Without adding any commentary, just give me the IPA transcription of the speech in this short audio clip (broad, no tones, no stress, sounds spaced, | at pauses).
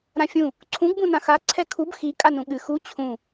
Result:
ɾ ã fʲ ũ | ǀʰ ũ ɡ b ũ n ã x a ǀʰ ɛ kʰ u b x i kʼ a n ũ ɠ ɨ x u t͡ɕʰ ũ